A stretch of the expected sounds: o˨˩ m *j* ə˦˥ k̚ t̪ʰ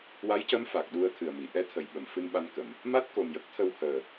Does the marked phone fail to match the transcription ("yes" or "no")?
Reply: no